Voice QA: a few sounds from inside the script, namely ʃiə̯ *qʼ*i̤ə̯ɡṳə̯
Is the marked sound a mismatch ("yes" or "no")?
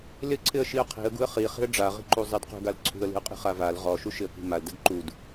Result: yes